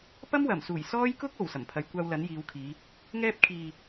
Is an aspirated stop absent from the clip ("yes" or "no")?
no